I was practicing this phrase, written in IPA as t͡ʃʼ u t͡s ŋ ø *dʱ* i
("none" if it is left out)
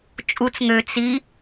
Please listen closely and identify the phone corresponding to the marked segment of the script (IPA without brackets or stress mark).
t͡s